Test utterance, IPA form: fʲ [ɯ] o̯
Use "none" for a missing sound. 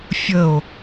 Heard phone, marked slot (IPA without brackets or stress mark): ə